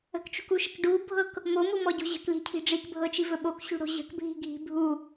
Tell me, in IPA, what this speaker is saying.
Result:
ə̤ k t͡ʃ ṳ k u ʃ ə k ɖ u bʱ ɤ k | m o m u m ɔ ɟ o̤ ʑ ə̤ k l i̤ cʰ i̤ ɖ͡ʐ i k bʱ ɤ t͡ʃ i v ɵ ɓ o k ɕ ṳ ɽ o̤ ʑ ə̤ k bʱ i̤ ɡʱ i̤ bʱ u

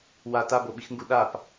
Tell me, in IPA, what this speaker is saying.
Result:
w a t a b o ɓ i x ŋ ɡ u ɗ a p

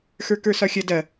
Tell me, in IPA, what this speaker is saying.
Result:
x ə˞ k ə˞ s ɒ xʲ ɐ d ɐ

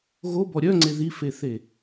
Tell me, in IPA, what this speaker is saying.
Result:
ɣ o b ɔ ɾʲ œ ŋ͡ǀ e ð i f e θ e

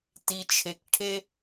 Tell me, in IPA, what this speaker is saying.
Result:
t i˧ t͡ʃʰ e˧ k ʈʰ e˥

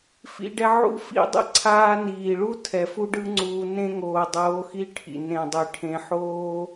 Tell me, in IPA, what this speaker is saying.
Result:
f ḭ˧ ɖ ɛ˧ ʕ ṵ˦ f ḭ˦ dˤ ḭ˦ ǀʰ aː˧ n iː˨ ɭ u˦ tʰ ɛ˨ f u˦ ɖ ɯ˦ ŋ͡ǀ uː˧ n ẽ˦ ŋ oː˨ dˤ oː˨˦ x i˦ ʈʰ ḭ˨ n ẽ˨ dˤ i˨ ʈʰ ẽ˧ ħ oː˦

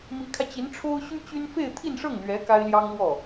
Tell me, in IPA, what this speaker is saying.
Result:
m i˧˥ kʰ ä˧ t͡ɕ i˧˥ n ʈ͡ʂʰ o˥ ʊ̯ ɕ y˥ t͡ɕ y˥ n f e˥˧ ɪ̯ t̪ʰ i˥˧ n ʂ ɤ˥˩ ŋ l ɥ ɛ˧˥ k a˥ ɪ̯ l j ɑ˥ ŋ l w ɔ˥˩

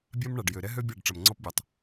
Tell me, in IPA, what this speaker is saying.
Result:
bʲ a˦ m ɳ a˨ ɖ j ø˨ ɾ ɛ˦ ɦ ø˦ bʲ a˦˨ ɖ ʈ͡ʂ ɐ˨ m ŋ͡ǀ ɔ˦ p bʲ ɐ˨ tˤ

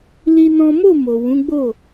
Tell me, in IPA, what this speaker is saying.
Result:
l i˦ n ɔ̃˦ m o˦˨ m o˨ w ũ˨˦ ɡ͡b o˦˨

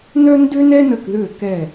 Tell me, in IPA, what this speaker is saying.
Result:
n œ˥ n d ø˥ n ɛ˥ n ə˦˨ k ð ø˦˨ k ɛ˦˨

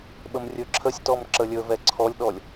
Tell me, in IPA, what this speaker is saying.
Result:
ɓ ə m rʲ ɵ ǁʰ ə sʲ t ɔ m ǁ ə lʲ ɵ v ɛ ǀʰ ɔ lʲ ɗ ɔ lʲ

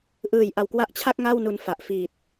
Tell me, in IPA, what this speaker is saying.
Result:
ʔ ɯː˨˩ j ʔ a˨˩ w k w a˦˥ ʔ t͡ɕʰ a˥˩ k̚ ŋ a˥˩ w n u˧ n f a˨˩ ʔ f i˨˩ t̚

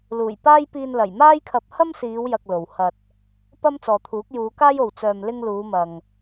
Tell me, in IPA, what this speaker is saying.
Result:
l uː˨˩ j p aː˥ j p iː˧ n l ɐ˨˩ j m aː˥ j kʰ ɐ˧ p̚ h ɐ˥ m s iː˨˧ w j ɐ˨ k̚ l o˨ w h ɐ˧ t̚ | p ɐ˥ m t͡s ɔː˨ t̪ʰ uː˨˥ k̚ j uː˨˧ k aː˥ j o˨ w t͡s œː˧ m l ɪ˥ ŋ l uː˨˧ m ɐ˨ ŋ

